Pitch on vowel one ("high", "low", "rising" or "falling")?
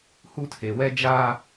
high